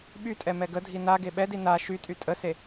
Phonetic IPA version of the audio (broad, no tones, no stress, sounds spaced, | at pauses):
ɓ y tʼ ɛ m ɛ ɡ ə dʱ i n a ɡ e ɓ ɛ d i n a ʃ y tʼ y tʼ ə s e